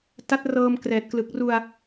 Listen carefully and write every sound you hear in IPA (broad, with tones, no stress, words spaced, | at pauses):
ta˦˥t̚rɤː˧m krɛː˨˩t̚klɯ˨˩k̚ru˧a̯